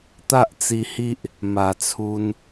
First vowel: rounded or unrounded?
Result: unrounded